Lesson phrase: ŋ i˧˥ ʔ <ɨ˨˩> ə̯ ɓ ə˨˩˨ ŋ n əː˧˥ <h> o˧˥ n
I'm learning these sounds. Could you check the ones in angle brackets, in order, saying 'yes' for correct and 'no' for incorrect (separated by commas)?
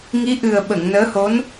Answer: yes, yes